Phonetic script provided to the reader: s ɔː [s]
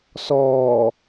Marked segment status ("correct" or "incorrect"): incorrect